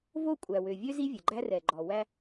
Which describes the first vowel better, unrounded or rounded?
rounded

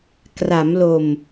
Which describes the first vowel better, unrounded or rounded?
unrounded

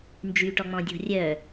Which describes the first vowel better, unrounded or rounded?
rounded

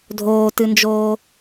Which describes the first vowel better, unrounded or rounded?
rounded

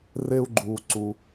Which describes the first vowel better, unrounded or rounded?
unrounded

